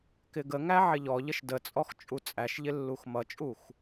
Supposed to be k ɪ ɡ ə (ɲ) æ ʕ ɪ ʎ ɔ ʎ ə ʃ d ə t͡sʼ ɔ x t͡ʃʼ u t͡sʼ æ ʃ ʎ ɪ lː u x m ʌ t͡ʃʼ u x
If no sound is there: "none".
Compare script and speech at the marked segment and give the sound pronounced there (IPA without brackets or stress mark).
ŋ